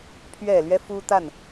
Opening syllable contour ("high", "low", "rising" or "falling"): low